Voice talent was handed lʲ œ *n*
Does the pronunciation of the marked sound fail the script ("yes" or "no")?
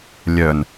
no